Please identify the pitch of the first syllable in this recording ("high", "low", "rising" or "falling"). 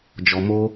low